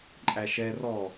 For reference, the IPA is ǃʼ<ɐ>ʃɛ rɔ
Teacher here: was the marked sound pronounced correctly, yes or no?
no